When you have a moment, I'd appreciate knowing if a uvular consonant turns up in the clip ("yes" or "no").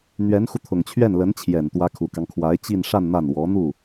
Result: no